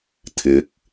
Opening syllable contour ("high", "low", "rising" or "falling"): rising